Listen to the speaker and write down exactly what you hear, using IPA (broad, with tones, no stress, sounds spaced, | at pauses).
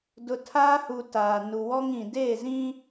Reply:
d ʊ˨ tʰ aː˦ h u˨ t aː˨ n u˨ w ɔ˦ ŋ ĩ˨ d eː˦˨ z ĩ˦